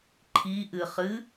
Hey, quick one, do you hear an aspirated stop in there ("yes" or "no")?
yes